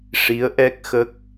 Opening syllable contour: rising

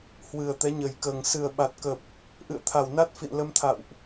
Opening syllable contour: low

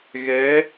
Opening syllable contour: rising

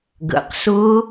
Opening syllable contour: low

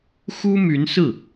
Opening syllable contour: high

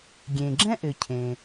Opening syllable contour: low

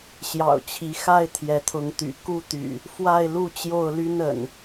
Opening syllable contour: low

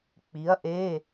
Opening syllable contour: rising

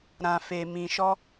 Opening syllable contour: low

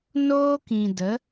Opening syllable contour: high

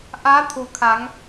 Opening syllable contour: rising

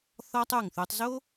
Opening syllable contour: high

